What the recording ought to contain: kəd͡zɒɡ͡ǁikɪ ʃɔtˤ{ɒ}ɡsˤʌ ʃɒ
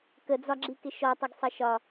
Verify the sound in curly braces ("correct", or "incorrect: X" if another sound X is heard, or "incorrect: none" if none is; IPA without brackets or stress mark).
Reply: incorrect: ʌ